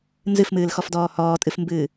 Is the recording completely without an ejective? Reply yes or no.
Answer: no